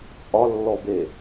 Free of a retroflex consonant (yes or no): yes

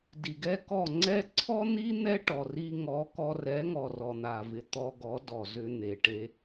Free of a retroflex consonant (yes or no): no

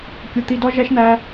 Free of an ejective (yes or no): yes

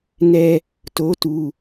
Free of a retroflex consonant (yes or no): yes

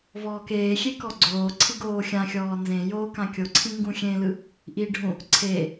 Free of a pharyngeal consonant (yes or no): yes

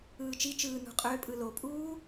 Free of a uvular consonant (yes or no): no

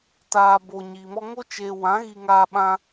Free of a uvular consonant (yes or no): yes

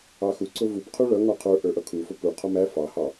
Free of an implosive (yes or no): yes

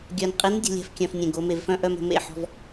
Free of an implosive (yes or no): yes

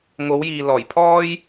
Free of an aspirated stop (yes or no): no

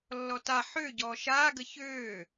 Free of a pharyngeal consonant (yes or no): no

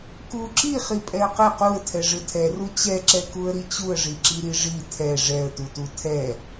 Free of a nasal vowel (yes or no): yes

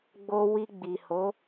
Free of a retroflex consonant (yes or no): yes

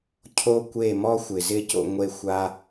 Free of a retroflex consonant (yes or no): yes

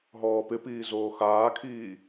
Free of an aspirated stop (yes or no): no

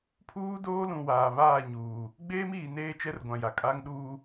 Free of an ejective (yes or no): no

